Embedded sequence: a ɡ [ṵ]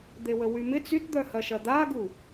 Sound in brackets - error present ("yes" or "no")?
yes